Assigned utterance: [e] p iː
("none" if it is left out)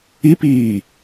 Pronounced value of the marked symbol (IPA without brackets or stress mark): i